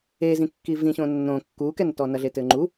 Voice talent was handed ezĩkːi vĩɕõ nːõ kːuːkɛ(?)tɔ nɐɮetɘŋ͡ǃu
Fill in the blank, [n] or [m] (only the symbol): n